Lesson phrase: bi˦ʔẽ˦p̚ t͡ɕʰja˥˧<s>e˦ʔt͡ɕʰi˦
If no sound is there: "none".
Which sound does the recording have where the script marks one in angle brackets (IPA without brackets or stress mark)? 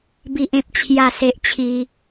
s